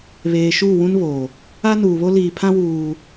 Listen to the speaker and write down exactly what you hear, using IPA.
β eː˨ ʃ uː˦˨ w ũ˦ n β oː˨ | a˦ n uː˨ β o˦ l iː˨ pʰ ã˦ w uː˦

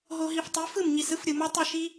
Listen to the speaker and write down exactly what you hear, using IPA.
ɦ o˧ ɦ i˧ f tˤ i˨˦ f ɯ˦˨ m ɲ i˨ s ɯ˦ f ɾʲ ɯ˨ m ɔ˦ tˤ ɯ˦˨ ʃ i˦

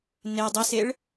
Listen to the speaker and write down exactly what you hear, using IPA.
n e dˤ i s e ɭ

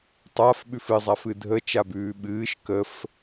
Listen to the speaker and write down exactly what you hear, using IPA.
tˤ a f ɓ ʉ f ɨ zˤ a f ɨ dʱ ə t͡ʃ a b ʉː ɓ ɨː ʃ k ə f

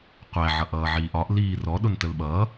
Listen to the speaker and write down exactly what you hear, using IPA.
qʷ æ ʕ ʌ ʔ ʌː ʕ iː ʔ ɒ ʔ l iː r ɔ ɗ ʊ n t ə l ɓ ʌː

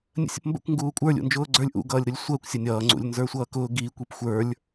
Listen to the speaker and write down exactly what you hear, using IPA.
nʲ ə̰ sʲ ə̰ p m b ə̰ kʷ ŋ ɡ uː kʷʼ ə˞ lʲ ṵ n d͡ʒ ʊː ɡ͡ǀ ə˞ lʲ ʔ ṵ ɡ ʌː lʲ ɾ ʊ lʲ sʷ əː kʷ sʲ ʌ nʲ ʌː ŋ͡ǀ ṵ lʲ n z ə˞ sʷ ʌː k ʊː ɡ i kʷ i p xʷ ə˞ lʲ

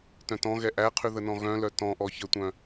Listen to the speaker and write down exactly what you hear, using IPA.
t œ̃ t ɔ̃ ɣ ɛ ʔ æ qʰ ʉ ð ə n ɔ̃ ɣ œ̃ l œ t ɔ̃ ʔ ɔ ç ə tʷ œ̃

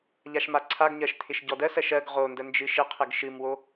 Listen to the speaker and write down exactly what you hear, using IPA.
ʎ a ʃ m a ǀʰ a ɡ ɲ ɜ ʃ t̪ʰ ɪ ʃ ɟ ɔ d ɜ s ɜ ʃ ɜ ɡ ʁ o n d ə n d͡ʒ ɨ ʃ ɪ qʰ ɘ ɡ ʃ ɨ m w o

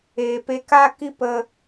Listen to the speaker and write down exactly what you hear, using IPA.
eː˨ p e˧ k a˦ k i˦ p ə˧

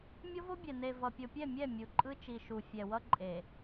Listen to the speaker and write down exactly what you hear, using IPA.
mʲ o˦ v o˦ bʲ ɛ˨ n e˨ v ʌ˨ pʲ o˨ pʲ ɛ˦˨ mʲ ɛ˦˨ mʲ u˨ ǃʼ ɯ˦ t͡ʃ i˨ ʃ u˨ fʲ ɛ˨ w ʌ˦ ǃʼ e˨

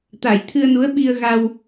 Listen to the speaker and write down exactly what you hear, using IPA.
t̪ a˨˩˨ j t̪ʰ ɨ˧ ə̯ n u˧˥ ə̯ ɓ i˧ ə̯ ɣ a˧ w

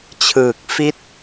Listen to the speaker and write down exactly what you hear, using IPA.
t͡ɕʰ ɯː˨˩ k̚ f i˥˩ t̚

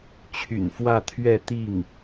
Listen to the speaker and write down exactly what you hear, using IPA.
t͡ɕʰ y̰˨˩ n f w ä˥˧ t̪ʰ ɥ ɛ˥˧ t̪ i˥˩ ŋ

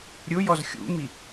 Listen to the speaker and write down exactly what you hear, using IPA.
ɾʲ ʊ j ɔ z xʲ ṵ m i

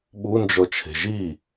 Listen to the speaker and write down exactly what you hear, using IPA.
ɓ u n d͡ʒ ɔ t͡ʃʰ e̤ ʒ i

